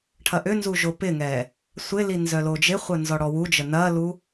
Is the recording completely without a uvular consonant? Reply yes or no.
no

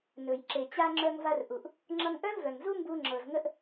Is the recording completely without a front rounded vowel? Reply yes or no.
no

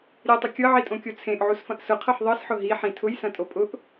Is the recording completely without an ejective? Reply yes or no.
no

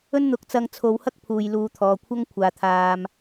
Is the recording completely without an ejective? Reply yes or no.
yes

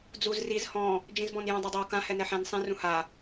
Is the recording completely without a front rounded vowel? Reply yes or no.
yes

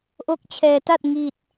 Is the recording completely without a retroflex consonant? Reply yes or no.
yes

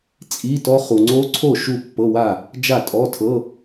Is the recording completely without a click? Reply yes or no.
no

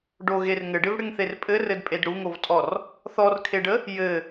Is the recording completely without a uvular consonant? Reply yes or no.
yes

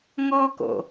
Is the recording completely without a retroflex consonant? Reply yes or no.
yes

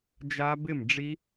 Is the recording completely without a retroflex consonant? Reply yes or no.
no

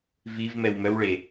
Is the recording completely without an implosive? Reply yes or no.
yes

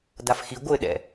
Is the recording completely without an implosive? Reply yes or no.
no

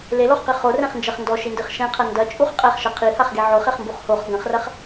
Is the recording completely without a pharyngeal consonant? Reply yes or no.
no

